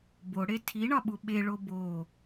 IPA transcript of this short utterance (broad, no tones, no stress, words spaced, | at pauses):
boɽe tʰiɳɒɓu ɓeɭo bo